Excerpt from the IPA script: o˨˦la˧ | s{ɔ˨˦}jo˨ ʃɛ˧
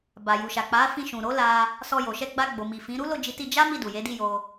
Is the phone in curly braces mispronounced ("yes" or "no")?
yes